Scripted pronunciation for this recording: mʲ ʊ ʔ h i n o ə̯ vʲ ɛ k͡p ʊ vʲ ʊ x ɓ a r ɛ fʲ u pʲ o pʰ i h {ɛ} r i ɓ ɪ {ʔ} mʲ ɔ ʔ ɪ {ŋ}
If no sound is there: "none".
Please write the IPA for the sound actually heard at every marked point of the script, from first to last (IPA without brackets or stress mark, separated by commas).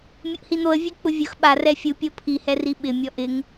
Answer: ɛ, none, ŋ